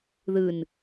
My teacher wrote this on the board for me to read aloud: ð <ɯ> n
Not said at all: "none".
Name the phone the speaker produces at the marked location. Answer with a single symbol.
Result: ɯ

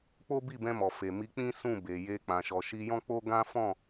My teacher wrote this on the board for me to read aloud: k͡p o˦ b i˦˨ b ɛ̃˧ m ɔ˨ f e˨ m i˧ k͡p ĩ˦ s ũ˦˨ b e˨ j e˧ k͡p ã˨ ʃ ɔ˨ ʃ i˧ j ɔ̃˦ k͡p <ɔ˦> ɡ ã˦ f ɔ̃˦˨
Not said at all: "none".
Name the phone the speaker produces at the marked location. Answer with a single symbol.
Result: o˦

